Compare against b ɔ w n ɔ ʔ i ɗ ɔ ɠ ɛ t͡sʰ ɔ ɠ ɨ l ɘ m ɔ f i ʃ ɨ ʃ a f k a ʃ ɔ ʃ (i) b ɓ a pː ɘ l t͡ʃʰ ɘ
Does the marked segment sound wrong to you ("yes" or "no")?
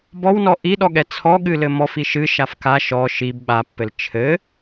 no